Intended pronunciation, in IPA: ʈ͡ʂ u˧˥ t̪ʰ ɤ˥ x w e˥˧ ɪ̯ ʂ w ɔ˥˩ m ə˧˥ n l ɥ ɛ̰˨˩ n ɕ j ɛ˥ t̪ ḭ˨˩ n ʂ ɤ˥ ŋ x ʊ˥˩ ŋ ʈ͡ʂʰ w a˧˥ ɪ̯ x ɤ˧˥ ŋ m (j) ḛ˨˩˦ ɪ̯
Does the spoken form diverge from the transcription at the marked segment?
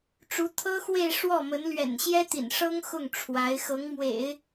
yes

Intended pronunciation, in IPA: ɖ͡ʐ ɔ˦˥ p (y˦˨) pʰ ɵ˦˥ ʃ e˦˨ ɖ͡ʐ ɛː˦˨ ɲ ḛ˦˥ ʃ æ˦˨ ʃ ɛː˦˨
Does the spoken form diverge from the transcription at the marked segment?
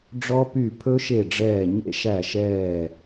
no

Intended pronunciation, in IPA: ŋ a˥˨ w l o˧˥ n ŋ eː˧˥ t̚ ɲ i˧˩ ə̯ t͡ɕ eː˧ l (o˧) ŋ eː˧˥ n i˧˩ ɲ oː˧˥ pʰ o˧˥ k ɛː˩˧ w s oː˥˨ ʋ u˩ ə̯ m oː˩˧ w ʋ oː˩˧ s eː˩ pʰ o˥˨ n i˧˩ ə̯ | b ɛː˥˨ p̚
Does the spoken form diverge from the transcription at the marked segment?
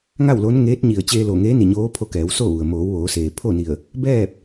yes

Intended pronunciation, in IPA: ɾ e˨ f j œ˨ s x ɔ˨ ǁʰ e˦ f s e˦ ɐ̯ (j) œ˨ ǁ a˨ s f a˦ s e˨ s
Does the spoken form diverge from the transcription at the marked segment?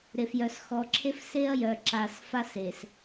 no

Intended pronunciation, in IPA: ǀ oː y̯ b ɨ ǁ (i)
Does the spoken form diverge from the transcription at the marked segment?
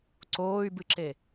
yes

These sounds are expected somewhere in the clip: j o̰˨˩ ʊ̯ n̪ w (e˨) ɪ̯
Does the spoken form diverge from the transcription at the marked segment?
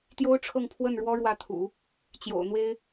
yes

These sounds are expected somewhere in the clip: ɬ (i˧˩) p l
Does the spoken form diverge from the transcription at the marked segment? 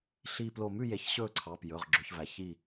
no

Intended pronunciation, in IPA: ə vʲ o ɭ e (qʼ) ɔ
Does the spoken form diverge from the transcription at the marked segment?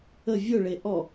yes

